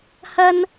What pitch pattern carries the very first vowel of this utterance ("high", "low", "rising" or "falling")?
high